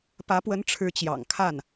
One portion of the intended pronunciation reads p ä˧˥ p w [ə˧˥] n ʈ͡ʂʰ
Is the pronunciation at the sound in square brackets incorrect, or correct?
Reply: correct